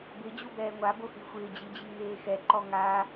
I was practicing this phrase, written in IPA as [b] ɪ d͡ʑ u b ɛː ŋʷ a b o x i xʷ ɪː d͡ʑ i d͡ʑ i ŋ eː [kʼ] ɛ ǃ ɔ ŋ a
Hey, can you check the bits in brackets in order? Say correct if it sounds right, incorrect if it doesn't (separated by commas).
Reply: correct, incorrect